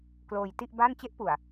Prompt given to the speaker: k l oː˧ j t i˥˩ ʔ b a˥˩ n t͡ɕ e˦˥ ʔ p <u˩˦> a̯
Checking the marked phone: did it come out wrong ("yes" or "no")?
yes